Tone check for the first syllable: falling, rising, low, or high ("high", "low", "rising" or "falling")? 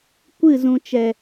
falling